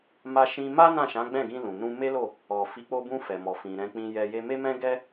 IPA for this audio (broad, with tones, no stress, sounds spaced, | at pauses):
m a˧ ʃ ĩ˧ m a˦ n ã˦˨ ʃ ã˨˦ ɡ͡b ɛ̃˦˨ ɡ ĩ˧ l ũ˨ n ũ˧ m e˦ l o˦˨ | ɔ˨ f i˨˦ k͡p o˧ b ũ˧ f ɛ˨ m ɔ˨ f ĩ˨ ɾ ɛ̃˧ k͡p ĩ˧ j ɛ˧ j e˧ m e˦ m ɛ̃˦ ɡ ɛ˦